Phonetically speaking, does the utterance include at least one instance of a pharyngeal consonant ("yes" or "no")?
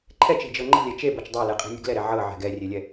yes